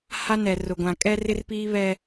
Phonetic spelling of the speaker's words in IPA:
h a˦ n ɛ˨ r ʊ˨ ɡʷ ã˨ kʼ ɛ˦ r ɪ˦ r p iː˦ β ɛ˦

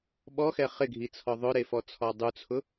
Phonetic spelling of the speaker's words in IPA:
ɓ ɔ x ɛ χ ɪ ɡʱ i t͡sʰ ɔ ðˤ ʊ ɾ e f ɔ t͡sʰ ɔ dˤ u t͡sʰ ʊ

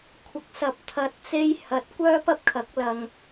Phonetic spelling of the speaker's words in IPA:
kʷʰ ɐ˨˥ k̚ s ɐ˨˥ p̚ t̪ʰ ɐ˨ t̚ t͡s e˧ j h ɐ˨˥ t̚ kʷ œː˥ p ɐ˥ p̚ kʰ ɐ˨˥ k̚ l ɐ˧ ŋ

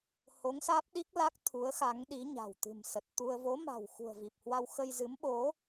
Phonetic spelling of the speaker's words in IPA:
h o˨˦ ŋ s aː˦˥ p̚ ɗ i˦˥ k̚ l a˦˥ k̚ t̪ʰ u˨˦ ə̯ x a˨˦ ŋ ɗ i˨˦ ɲ a̤˨˩ w t̪ ɨ̤˨˩ m s ə˨˩ t̚ t̪ u˧ ə̯ v o˨˦ m a̤˨˩ w x ṳ˨˩ ə̯ v i˨˩ p̚ h w a˧ w x ə˧ j z ɨ˨˦ m ɓ o˨˦

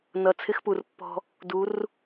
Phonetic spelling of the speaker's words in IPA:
n ʌ˨ t͡sʰ ɪ˦ x p u˨ r pː ɔ̤˦ | d u˨˦ r

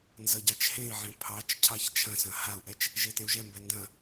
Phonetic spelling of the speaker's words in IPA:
n z ʌ ɟ ɑ t͡ʃ h ẽ i̯ ʕ ẽ pʰ ɑ t͡ʃ cʰ ɑ ç t͡ʃʰ ɐ̃ s ɐ̃ h a u̯ ʔ ɛ t͡ʃ | ʒ e t ẽ u̯ ʒ ɛ m b ɛ n d ɐ̃

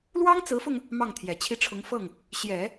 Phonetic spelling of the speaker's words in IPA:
l w ɑ˥ ŋ t͡s ɹ̩˧˥ f ʊ˧ ŋ | m ɑ˥˩ ŋ t̪ʰ j ɛ˨˩ t͡ɕʰ i˥˩ ʈ͡ʂʰ ʊ˧˥ ŋ f ɤ˥˩ ŋ | ɕ j ɛ˨˩˦

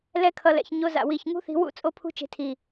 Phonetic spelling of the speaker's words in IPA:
l ɛ˦ kʰ ʌ˧ l ɛ̰˨ ç ɲ o˧ z a̰˨ w i˨ ç ŋ ṳ˦ θ i̤˧ w ṵ˦ t͡sʼ o˦ pʰ ṳ˦ t͡ʃ e̤˧ tʰ i˨

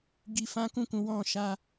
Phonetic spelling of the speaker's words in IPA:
ɡ i˧ f ã˦ k ũ˦˨ k ũ˨˦ w ɔ̃˧ ʃ a˧

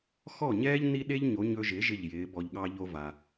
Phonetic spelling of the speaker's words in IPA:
x ɔ˥˩ ɲ ɛː˥ ʎ n i˥ ɗ e˥ ʎ ɲ o˩˥ ɲ ɵ˧ ʒ ɪ˩˥ ʒ ɪ˥˩ ʎ j ɪː˩˥ b ɔ˧ ʎ ɠ ɑ˥ ʎ o˧ v a˩

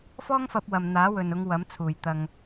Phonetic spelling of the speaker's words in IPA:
f ɔː˥ ŋ f ɐ˧ p̚ w ɐ˨ m n̪ aː˨˥ w ɵ˨ n ʊ˨˧ ŋ w ɐ˨˥ m t͡sʰ uː˨˩ j t̪ ɐ˧ ŋ

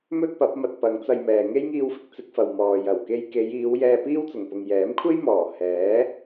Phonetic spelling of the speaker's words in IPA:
m ɵ˥ t̚ p ɐ˨˥ p̚ m ɐ˧ t̚ p ɐ˨˧ ŋ t͡s ɐ˧ j m ɛː˨ ŋ e˥ j ŋ iː˧ w f ɪ˨ k̚ t͡s ɪ˧ k̚ f ɐ˨ w m ɔː˨ j ɐ˨˩ w k e˧ j k e˨˧ j iː˨˧ w j ɛː˧ p iː˥ w t͡s ʊ˨˩ ŋ p ʊ˨ ŋ j ɛː˨˥ m kʷʰ e˥ j m ɔː˨˩ h ɛː˨˥

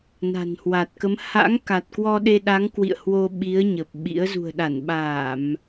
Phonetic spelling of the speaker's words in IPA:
n a̤˨˩ n h w a˨˩ t̚ k ə˨˦ m h a̰˧˥ ŋ k a˨˩ t̚ k w ɔ˧ ɗ e˧ ɗ a˨˦ ŋ k w ḭ˧˨ ə̯ h w o˧ ɓ i˨˦ ə̯ ɲ ə˨˩ p̚ ɓ ḭ˧˥ ə̯ z ṳ˨˩ ə̯ ɗ a˧˩ n ɓ aː˧˩˨ m

